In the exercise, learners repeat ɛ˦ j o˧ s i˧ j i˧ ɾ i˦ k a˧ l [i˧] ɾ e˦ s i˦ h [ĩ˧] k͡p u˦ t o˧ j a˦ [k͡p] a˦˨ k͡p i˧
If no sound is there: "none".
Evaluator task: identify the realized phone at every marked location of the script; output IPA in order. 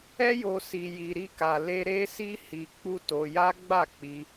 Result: e˧, i˧, ɡ͡b

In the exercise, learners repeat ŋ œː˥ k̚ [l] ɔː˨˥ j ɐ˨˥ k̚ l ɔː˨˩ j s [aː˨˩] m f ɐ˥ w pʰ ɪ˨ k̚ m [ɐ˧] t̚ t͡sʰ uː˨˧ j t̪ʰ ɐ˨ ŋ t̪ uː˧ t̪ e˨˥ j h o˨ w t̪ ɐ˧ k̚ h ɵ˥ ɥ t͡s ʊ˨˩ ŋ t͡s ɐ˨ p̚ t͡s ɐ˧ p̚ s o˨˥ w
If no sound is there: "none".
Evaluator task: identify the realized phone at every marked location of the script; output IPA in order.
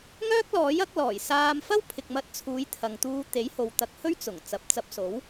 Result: l, aː˧, ɐ˧

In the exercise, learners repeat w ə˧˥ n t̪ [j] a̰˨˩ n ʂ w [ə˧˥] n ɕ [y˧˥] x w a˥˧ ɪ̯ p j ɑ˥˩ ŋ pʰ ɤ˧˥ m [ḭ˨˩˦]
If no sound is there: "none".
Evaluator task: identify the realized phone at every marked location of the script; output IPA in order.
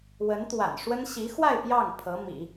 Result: w, ə˥, i˧˥, ḭ˨˩˦

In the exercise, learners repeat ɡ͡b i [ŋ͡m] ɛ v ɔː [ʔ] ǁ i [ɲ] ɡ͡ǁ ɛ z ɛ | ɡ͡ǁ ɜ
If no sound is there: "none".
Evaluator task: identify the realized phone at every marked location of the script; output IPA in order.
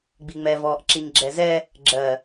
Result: ŋ͡m, ʔ, ɲ

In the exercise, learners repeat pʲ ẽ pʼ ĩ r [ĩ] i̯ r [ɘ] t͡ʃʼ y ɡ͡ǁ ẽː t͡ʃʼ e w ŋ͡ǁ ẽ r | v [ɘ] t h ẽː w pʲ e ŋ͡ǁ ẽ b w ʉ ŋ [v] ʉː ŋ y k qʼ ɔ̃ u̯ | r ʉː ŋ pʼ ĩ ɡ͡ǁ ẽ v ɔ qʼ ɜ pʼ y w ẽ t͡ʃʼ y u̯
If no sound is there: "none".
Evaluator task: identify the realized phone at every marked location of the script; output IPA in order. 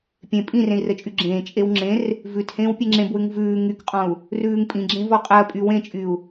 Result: ẽ, ɘ, ʉ, v

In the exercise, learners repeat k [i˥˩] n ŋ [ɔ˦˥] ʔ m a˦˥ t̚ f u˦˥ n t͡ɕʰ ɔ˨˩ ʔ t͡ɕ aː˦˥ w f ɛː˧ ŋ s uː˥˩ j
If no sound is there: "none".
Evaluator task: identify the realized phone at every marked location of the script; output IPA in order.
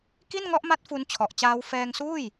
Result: i˥˩, ɔ˦˥

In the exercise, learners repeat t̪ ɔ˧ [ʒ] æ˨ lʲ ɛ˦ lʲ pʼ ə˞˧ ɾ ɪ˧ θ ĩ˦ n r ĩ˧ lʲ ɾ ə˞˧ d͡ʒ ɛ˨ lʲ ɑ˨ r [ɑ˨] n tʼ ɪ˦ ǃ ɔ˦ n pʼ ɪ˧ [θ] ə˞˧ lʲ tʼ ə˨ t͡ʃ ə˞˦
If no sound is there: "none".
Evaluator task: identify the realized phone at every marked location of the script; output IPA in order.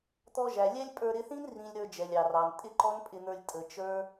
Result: ʒ, ɑ˨, n̪

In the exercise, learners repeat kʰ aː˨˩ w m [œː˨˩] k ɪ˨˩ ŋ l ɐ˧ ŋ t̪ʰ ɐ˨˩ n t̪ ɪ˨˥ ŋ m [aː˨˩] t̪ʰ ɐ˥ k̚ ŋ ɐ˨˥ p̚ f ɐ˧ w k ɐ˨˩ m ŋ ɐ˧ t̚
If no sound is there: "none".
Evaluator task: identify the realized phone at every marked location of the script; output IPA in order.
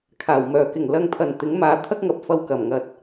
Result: œː˨˩, aː˨˥

